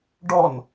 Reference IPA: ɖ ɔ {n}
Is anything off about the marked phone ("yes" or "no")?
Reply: no